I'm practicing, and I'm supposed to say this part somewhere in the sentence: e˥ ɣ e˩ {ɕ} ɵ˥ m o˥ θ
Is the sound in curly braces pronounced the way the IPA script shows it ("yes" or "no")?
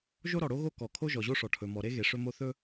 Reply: no